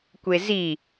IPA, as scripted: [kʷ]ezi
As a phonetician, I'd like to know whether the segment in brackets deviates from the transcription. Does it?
no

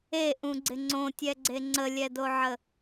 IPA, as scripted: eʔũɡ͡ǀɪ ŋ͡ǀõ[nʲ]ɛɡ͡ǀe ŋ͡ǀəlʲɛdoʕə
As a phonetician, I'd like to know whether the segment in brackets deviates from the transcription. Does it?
yes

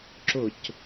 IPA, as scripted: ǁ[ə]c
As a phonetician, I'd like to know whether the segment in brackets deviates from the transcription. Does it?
yes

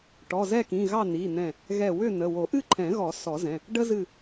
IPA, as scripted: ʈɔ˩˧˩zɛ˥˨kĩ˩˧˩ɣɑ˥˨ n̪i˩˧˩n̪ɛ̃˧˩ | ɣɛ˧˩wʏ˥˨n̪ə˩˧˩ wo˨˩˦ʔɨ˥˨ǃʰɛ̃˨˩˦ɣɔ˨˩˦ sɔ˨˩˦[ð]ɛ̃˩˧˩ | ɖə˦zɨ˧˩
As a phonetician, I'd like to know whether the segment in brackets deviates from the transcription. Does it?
yes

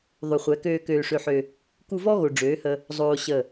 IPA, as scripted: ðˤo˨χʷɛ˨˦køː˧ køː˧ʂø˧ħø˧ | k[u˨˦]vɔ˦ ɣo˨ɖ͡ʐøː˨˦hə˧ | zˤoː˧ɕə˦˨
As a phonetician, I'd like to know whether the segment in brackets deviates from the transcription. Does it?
yes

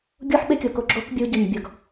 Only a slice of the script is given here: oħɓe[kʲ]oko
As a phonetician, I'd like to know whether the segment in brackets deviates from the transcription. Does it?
no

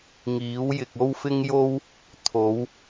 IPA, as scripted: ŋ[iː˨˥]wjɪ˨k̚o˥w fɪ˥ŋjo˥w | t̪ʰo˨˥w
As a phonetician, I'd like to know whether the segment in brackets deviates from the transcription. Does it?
no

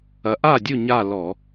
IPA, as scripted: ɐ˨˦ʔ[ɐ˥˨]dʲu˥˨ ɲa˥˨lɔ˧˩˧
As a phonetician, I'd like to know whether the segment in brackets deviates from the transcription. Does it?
yes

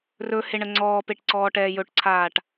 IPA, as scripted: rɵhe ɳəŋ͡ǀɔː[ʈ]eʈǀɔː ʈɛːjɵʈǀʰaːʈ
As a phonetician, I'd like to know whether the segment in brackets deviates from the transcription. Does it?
yes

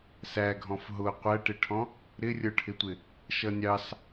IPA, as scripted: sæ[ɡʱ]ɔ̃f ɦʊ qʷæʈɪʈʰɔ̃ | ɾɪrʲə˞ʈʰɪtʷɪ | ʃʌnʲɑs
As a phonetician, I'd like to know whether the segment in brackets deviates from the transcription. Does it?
no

